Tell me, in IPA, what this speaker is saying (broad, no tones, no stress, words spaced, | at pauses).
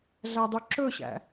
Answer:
ɮædˤyǁɵɕæ̰